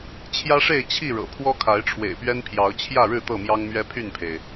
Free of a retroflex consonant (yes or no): no